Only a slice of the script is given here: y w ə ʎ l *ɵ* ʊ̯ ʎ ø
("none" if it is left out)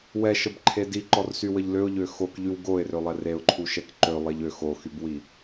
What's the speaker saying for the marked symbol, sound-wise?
ø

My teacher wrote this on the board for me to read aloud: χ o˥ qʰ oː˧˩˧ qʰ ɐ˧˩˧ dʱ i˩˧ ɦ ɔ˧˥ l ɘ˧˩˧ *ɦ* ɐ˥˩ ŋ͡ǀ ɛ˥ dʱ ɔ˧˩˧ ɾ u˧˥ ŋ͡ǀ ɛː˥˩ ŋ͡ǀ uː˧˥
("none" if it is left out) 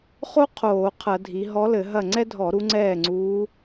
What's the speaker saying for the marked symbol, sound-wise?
ɦ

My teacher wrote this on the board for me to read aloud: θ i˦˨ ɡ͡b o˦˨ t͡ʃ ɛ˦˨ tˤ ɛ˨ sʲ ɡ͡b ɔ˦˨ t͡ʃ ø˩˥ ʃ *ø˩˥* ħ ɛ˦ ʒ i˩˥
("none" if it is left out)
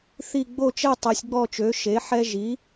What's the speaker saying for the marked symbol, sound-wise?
e˩˥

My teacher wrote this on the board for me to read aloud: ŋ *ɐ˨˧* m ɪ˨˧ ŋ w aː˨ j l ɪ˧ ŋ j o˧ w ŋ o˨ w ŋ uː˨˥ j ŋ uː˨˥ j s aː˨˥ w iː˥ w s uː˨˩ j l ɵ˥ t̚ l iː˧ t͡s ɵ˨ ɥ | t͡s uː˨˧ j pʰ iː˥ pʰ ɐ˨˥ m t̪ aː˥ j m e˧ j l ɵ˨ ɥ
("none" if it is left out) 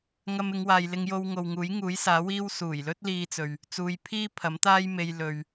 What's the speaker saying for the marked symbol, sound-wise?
ɐ˧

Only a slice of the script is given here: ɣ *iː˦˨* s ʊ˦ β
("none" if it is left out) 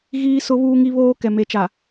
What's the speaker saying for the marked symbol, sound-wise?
iː˦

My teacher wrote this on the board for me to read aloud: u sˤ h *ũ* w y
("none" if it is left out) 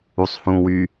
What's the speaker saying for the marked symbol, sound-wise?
ũ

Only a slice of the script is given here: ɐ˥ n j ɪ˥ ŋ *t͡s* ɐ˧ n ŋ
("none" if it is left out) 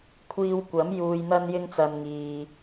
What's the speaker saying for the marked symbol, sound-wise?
t͡s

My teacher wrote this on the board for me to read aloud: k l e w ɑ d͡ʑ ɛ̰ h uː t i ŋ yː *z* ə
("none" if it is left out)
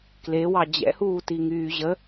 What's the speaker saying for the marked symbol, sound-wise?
ʑ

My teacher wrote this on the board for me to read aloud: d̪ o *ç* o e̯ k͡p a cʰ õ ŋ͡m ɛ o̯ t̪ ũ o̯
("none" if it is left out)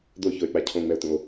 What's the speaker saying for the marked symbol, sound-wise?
ç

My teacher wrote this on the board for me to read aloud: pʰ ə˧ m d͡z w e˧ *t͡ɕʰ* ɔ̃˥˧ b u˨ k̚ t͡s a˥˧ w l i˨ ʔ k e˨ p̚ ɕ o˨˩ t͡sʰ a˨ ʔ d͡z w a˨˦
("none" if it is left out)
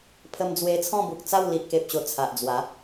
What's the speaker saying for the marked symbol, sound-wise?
t͡sʰ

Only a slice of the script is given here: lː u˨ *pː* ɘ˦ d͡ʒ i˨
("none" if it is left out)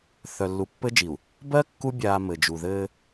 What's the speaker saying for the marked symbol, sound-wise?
pː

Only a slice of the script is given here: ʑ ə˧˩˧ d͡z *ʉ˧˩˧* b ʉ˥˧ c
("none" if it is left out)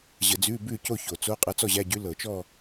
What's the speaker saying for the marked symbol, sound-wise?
ʉ˧˥˧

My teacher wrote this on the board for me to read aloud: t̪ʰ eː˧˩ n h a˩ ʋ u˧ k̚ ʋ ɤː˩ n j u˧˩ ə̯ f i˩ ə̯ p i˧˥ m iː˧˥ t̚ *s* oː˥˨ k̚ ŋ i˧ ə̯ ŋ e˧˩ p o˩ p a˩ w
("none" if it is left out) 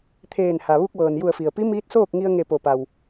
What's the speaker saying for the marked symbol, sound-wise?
s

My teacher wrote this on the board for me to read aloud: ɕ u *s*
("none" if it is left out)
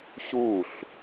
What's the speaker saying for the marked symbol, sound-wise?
ɬ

